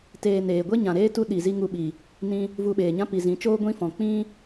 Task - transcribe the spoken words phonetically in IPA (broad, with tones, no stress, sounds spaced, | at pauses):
t eː˧ n eː˨ ɡʷ e˦ ɲ ã˨ ɾ eː˦ t u˦ ɗ i˨ z i˦ ŋ u˧ ɓ i˨ | n ĩ˧ | v u˧ ɓ eː˨ ɲ ã˦ p i˨ z ĩ˨˦ t͡ʃ oː˦ ɡʷ ĩ˦ f ɔ̃˨ k͡p ĩ˦